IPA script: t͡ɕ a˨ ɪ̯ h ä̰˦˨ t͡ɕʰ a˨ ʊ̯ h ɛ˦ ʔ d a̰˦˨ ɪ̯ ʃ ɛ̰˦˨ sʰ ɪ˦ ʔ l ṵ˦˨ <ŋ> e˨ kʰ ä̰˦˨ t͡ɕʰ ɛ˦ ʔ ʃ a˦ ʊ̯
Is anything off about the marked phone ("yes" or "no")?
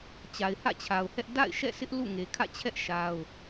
no